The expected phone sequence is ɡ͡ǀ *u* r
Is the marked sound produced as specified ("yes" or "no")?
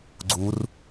yes